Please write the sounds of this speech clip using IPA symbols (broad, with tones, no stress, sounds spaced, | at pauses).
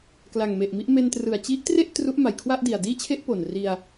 k l a˨˩ ŋ m e˨˩ ʔ m i˦˥ ʔ m e˧ n t r ɯ˨˩ a̯ t͡ɕ i˦˥ ʔ t r e˥˩ ʔ t r u˦˥ ʔ m a˨˩ j kʰ w a˥˩ ʔ d i˨˩ a̯ d iː˥˩ t͡ɕʰ e˥˩ ʔ p o˨˩ n r i˧ a̯